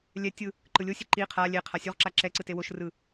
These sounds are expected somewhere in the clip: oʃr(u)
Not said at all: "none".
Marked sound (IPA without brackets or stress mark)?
ɯ